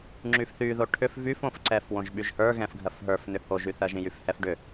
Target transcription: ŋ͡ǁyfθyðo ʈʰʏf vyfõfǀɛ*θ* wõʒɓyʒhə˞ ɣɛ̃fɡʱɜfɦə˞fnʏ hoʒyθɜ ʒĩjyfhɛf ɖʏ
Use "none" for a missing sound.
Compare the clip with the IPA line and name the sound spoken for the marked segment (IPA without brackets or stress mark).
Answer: f